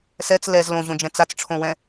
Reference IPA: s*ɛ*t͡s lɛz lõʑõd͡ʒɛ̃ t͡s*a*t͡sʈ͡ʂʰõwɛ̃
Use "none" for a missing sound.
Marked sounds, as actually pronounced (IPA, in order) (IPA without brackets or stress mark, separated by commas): ɛ, a